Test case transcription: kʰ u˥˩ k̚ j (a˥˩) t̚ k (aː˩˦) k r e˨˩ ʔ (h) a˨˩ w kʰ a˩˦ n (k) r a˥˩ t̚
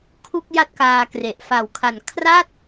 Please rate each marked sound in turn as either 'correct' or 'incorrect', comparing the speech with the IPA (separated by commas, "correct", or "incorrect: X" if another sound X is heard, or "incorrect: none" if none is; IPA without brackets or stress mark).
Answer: correct, incorrect: aː˧, incorrect: f, incorrect: kʰ